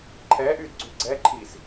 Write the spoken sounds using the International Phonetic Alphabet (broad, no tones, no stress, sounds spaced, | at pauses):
ǃʰ ɛː ʔ yː d ɡ͡ǀ yː ɡ͡ǀ ɛː ǃʰ iː s